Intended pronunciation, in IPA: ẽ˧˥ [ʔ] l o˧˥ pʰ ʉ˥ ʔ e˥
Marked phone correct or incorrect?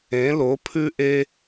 incorrect